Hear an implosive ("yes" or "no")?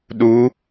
yes